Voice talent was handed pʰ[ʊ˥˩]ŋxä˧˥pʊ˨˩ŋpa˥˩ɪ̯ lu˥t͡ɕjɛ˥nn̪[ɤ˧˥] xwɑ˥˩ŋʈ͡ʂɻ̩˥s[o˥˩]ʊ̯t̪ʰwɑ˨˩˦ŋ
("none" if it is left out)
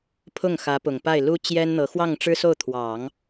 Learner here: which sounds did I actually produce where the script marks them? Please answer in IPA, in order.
ʊ˥˩, ɤ˧˥, o˥˩

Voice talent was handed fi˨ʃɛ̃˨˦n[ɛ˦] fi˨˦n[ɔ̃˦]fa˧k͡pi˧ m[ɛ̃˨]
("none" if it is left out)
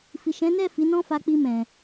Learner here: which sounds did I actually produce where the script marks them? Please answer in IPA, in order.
ɛ˦˨, ɔ̃˦, ɛ̃˨

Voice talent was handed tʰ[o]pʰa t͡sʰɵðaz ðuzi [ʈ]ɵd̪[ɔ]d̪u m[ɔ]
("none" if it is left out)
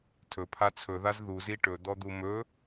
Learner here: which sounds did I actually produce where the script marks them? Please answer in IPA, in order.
ɵ, ʈ, ɔ, ɵ

